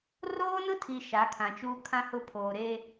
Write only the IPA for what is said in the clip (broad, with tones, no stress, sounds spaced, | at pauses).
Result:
r oː˦ n ʊ˦ tʰ i˨ ʃ a˨˦ kʰ ã˨ t͡ʃ uː˦ kʰ ã˦ h ʊ˦ pʰ oː˨ ɾ e˦